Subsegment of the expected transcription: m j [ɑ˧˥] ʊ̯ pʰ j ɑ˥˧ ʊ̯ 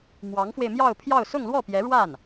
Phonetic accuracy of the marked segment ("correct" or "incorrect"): incorrect